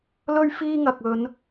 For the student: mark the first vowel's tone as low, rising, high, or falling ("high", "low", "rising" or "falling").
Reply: high